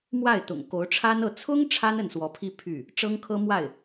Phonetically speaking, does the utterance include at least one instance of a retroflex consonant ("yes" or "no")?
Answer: yes